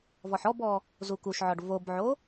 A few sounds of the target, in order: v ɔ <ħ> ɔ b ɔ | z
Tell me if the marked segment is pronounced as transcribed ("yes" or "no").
yes